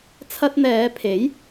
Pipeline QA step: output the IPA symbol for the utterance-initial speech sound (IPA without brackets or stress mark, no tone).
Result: t͡sʰ